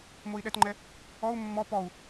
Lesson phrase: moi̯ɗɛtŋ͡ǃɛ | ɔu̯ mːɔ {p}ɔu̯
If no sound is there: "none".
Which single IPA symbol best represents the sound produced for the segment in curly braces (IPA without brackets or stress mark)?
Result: p